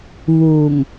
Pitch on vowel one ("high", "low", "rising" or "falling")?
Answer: low